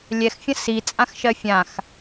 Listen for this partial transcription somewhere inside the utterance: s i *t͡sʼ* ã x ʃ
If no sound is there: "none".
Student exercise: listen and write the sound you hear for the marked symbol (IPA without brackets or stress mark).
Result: t͡sʼ